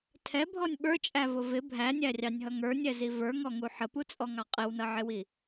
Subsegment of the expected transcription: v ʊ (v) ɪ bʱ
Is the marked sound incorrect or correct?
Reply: correct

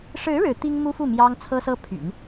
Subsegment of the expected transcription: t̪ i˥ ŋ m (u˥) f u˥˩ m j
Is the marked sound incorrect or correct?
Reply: correct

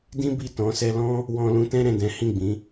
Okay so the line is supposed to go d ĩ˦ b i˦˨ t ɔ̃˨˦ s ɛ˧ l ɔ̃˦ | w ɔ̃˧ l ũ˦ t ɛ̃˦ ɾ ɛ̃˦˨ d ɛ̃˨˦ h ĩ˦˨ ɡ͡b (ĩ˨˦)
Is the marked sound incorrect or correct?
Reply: correct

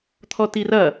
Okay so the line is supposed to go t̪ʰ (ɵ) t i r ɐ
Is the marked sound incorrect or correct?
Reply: incorrect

